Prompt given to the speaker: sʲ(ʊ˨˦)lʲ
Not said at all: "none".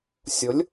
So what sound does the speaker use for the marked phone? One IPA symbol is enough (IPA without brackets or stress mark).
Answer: ʊ˨˦